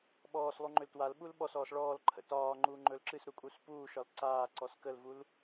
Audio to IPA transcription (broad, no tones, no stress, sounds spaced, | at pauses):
ɓ ɔː s lˠ u ŋ͡ǃ ø l t w a l ɓ u l ɓ ɔ s ɔː s ɭ ɔː l ǃʰ ə̰ t ɒː ŋ͡ǃ uː ŋ͡ǃ ɵ l ǁ ɨ s ɾ u kʼ u s p uː ʃ ɒ l ǀ aː ǀ ɔ s k ə l v u l